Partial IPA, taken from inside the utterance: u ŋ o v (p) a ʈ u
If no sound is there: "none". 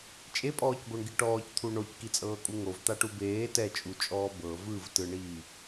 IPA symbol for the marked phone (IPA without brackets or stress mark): t̪